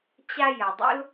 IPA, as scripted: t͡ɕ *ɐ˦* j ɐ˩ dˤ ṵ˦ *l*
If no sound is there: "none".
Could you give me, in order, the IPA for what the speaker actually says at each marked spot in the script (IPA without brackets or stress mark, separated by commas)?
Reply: a˦, l